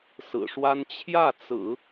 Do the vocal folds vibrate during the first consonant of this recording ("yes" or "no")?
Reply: no